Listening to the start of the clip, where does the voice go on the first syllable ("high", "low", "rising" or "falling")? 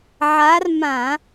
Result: rising